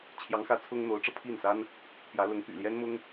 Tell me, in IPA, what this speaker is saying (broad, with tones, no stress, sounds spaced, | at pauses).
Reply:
t͡ɕʰ j ɑ˧˥ ŋ x ä˧˥ t͡sʰ ʊ˥ ŋ n̪ o˧˥ ʊ̯ ʈ͡ʂ ɤ˧ pʰ i˥˩ n s a˥ n | p j ä˧˥ l ʊ˧˥ ŋ p y̰˨˩ l j ɛ˥ n m ʊ˥ ŋ